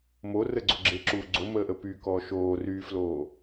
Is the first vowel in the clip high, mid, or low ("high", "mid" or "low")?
mid